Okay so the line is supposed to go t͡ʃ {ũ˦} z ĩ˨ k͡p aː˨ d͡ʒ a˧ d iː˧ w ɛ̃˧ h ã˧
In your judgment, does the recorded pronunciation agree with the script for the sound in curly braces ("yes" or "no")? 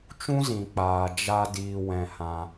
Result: yes